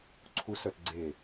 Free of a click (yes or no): no